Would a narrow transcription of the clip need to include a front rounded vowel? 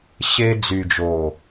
yes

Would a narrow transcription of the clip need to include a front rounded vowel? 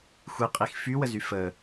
yes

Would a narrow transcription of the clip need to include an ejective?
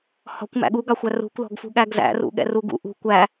no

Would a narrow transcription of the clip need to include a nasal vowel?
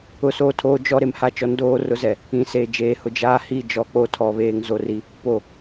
yes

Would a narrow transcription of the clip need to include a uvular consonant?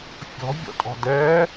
no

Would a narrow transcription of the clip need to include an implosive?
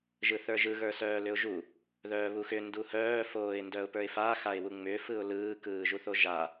no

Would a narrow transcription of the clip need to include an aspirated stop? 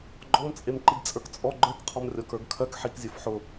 yes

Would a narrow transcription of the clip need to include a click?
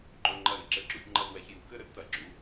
yes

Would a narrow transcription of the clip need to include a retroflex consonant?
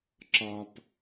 no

